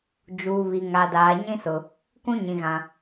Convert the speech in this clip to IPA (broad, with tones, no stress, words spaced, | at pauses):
d͡ʒuː˨βi˨ ŋa˨daː˨ɲĩ˦sʊ˨ | kũ˦ɲĩ˨ɣã˨